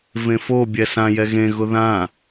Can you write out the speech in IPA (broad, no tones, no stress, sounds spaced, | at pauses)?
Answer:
v ẽ f o bʲ ɛ s ã j ɛ ɣ ẽ ɣ ʊ ð ã